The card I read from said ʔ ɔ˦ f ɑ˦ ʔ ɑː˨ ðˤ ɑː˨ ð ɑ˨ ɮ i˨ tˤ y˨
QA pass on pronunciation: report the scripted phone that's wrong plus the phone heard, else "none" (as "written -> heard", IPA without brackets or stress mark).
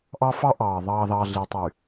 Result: ɔ˦ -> ɑ˦